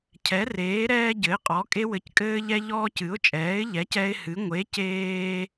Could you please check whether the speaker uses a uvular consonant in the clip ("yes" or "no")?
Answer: yes